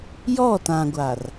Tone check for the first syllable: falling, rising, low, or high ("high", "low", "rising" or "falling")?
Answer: falling